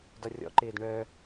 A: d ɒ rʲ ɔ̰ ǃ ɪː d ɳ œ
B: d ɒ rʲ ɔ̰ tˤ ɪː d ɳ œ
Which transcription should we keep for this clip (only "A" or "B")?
A